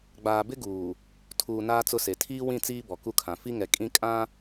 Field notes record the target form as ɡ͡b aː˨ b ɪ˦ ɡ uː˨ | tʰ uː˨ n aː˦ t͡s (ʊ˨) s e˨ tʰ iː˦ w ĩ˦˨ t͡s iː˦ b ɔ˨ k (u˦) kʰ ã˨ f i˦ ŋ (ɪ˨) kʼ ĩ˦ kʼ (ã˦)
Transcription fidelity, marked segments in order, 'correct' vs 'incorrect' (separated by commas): incorrect, correct, incorrect, correct